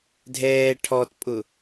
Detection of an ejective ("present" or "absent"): present